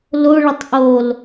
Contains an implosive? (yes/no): no